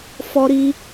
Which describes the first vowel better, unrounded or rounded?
rounded